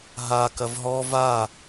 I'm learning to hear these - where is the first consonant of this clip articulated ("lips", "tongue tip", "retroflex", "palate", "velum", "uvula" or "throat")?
throat